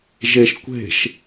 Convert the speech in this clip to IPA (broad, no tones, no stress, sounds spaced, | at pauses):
ʒ e ʃ kʷ e̤ ʃ